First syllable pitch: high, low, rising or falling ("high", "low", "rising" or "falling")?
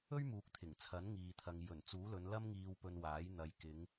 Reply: high